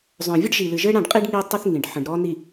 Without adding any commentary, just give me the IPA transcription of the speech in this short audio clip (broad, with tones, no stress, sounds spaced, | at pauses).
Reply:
zˤ œ̃˨ vʲ ɘ˦ ɖ ʒ i˨ l ɨ˨ ʒ ɘ˦ ɽ ã˦˨ ɖ qʼ i˦ ɖ ŋ i˦ tˤ ɪ˦ θ ŋ ĩ˨ ɖ ħ ə̃˨ ɖ ɾ ɔ˦ n i˨